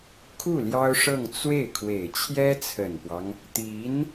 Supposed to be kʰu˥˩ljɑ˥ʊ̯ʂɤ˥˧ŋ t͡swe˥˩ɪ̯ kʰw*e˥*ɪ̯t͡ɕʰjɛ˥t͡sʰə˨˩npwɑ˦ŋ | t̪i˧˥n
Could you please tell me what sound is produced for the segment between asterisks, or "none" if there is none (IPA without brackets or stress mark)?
e˨˩